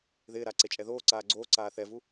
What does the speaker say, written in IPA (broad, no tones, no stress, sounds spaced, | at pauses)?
ð ɪː ɾ a ǀ e t͡ʃʼ ɛ ð oː ǀ aː ɡ͡ǀ oː ǀ aː θ ɛ v u